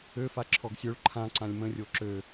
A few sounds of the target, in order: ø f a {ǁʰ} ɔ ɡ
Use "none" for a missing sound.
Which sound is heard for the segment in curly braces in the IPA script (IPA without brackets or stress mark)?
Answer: ǁʰ